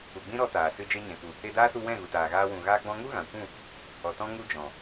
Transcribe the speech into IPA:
u˨ ɡ͡b ĩ˦ ɾ ɔ˧ t aː˨ s ɨ˧ d͡ʒ e˧ ɲ ɛ̃˨ k u˨ | e˧ d aː˦ s u˧ w ɛ̃˦˨ ɣ u˨ t aː˨ ɣ aː˧ w ũ˨ ɣ aː˧ ɡ͡b ɔ̃˧ ŋ u˦ ɣ ã˨ kʷ ũ˦˨ | ɔ˨ t ɔ̃˧ ŋ u˦ d͡ʒ ɔ̃˨

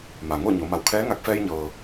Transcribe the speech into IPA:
m a˩ ŋ o˥˨ ɲ o˩˧ m a˩˧ w kʰ ɛː˧˥ ŋ a˧ k̚ f ɛː˧ j ɲ ɤː˩

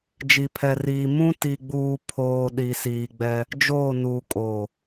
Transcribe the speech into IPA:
d͡ʒ i˨ pʰ ɛ˨ r iː˨ m ũ˦ t i˨ ɡ͡b uː˨ pʰ oː˨ ɗ i˨ s iː˨ ɡ͡b ɛ˦ | d͡ʒ oː˦˨ n uː˨ kʼ oː˨

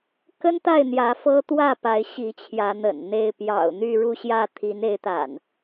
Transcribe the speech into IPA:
k ə˦ n t̪ a˥˨ ɪ̯ n̪ j ä˨˦ f ɤ˦ t̪ w ä˥˨ p a˨˦ ɪ̯ ɕ i˨˦ t͡ɕʰ j ä˨˦ n̪ ə̰˨˩ n n̪ e˥˨ ɪ̯ p j ɑ̰˨˩ ʊ̯ n̪ y˥˨ ɻ u˥˨ ɕ j ä˥˨ t̪ʰ i˨˦ n e˨˦ ɪ̯ t̪ a̰˨˩ n

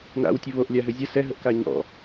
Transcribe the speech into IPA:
n a̰ w tʲ ə β o ʔ lʲ a ɦ ʏ zʲ ə s ɛ ɦ ə ʔ k a ɲ ɔ̰

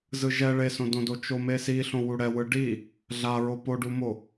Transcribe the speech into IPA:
z ɯ ʒ ɛ ɭ e s õ d õ d o t͡ʃ o m e s i ɬ õ w u ɽ ɛ w ɯ ɖ i | ɮ a ɹ o p o ɖ u m o

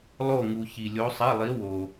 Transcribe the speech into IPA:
lˠ o˦˨ ŋ u˨ ç i˨ lʲ o˧˥ sˤ i˧˥˧ lˠ i˧˥ w o˨

